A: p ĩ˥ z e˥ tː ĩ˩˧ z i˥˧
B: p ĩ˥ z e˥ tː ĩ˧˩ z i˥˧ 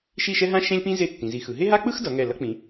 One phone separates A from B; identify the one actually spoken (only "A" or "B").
A